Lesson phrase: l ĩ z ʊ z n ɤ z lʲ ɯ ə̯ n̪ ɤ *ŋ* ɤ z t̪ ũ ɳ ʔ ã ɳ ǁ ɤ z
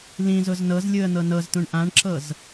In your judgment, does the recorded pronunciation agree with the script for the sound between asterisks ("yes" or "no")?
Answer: no